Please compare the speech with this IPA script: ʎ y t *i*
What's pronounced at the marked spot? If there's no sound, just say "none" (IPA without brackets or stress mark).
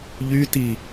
i